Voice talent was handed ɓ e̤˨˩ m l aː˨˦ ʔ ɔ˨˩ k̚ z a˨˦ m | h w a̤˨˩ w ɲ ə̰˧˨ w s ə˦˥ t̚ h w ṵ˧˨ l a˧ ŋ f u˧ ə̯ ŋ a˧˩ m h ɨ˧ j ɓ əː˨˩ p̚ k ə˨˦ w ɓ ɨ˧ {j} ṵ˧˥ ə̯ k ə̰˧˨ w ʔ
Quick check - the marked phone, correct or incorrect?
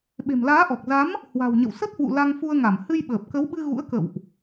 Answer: incorrect: ɣ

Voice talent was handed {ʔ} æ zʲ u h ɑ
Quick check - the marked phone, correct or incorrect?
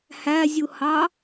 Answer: incorrect: h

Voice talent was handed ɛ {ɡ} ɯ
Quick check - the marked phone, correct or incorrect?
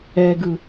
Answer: correct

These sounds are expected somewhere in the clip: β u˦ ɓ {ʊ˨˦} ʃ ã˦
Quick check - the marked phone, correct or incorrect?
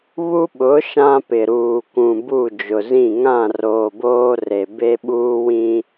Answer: correct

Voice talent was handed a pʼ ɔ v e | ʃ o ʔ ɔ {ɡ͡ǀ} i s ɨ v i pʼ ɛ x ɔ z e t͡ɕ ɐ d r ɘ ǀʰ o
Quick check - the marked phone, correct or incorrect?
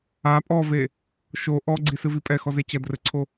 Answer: correct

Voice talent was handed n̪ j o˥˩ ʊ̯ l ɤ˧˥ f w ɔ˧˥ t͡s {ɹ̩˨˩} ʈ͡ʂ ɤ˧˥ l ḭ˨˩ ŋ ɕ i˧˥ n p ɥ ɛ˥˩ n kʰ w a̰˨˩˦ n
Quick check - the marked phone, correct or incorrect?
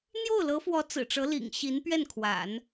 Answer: correct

